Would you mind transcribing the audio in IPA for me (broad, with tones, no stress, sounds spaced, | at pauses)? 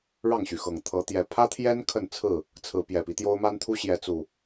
ɻ ɑ˥˨ ŋ ɕ y˩ x ɤ˨˩ ŋ t̪ʰ ɤ˨˦ t̪ j ɛ˨˦ pʰ ä˦ t̪ʰ j ɛ˦ n kʰ ə˥˨ n t͡sʰ ɹ̩˥˨ | t͡sʰ ɹ̩˨˦ p j ɛ˨˩ p i˦ t̪ j o˦ ʊ̯ m a˦ n t̪ʰ u˦ ɕ j ɛ˨˦ t͡s u˨˩